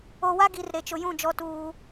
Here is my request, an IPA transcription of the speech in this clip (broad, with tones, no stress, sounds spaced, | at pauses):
o˨ w a˦ ɡ i˨ r ɾ e˨ t͡ʃ ʊ˨ j ũ˦˨ d͡ʒ ɔ˦ t uː˦